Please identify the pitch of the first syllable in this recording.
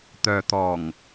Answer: low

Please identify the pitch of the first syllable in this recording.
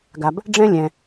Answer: low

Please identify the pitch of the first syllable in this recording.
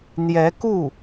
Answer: rising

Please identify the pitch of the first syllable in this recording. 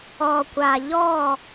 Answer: low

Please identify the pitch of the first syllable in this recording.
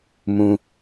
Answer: high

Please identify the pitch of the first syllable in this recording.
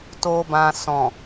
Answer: low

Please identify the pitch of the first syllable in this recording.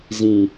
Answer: low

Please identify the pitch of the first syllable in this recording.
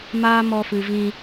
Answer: high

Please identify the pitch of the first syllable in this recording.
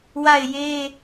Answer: falling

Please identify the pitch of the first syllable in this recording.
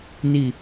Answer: falling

